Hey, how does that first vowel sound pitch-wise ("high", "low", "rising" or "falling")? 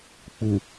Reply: low